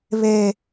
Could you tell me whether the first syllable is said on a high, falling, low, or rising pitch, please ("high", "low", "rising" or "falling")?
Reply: low